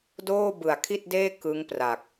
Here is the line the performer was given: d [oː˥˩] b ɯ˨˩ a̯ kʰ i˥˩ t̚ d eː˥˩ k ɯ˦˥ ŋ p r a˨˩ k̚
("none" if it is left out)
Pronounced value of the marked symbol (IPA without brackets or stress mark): oː˥˩